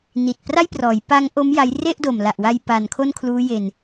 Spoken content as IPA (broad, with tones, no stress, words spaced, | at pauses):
ni˨˩t̚ pra˥˩jprɔː˩˦jpa˦˥ŋʔo˦˥m ja˦˥j re˥˩ʔdo˨˩mla˨˩ʔwa˧j pa˨˩nkʰo˥˩nkʰluː˦˥je˧n